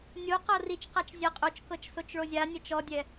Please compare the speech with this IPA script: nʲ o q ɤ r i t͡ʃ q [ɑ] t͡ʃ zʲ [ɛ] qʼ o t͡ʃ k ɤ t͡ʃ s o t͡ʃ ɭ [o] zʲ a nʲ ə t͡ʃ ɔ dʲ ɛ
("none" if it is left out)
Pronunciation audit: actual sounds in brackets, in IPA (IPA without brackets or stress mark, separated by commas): a, ɛ, o